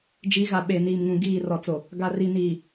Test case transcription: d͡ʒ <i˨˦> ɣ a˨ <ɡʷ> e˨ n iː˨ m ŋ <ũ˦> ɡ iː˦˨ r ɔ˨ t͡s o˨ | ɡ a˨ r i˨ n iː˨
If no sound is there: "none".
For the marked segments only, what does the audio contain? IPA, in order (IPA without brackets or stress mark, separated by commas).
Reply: i˨˦, ɓ, ũ˨